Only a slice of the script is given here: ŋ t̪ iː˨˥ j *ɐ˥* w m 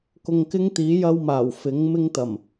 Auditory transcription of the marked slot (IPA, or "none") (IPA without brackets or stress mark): ɐ˥